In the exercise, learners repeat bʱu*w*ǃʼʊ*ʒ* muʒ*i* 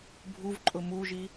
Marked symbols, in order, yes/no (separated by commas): no, no, yes